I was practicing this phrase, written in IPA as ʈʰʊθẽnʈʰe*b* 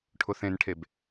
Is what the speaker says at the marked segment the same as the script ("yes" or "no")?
yes